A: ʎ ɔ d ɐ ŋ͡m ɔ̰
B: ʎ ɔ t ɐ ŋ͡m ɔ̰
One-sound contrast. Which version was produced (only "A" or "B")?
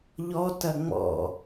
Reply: B